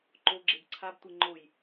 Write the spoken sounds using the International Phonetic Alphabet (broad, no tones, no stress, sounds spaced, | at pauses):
ǃ o ɡ͡ǁ e b ǀʰ a b tʷ e ŋ͡ǃ o j